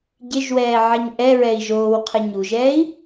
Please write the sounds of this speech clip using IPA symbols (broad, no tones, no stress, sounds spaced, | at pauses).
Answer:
ɟ ɪ ʒ w ɛː ʕ ɛ ɲ ʔ ɛ ɹ ɛ i̯ ʒ oː w qʰ ɪ ɲ u ʒ ɛː i̯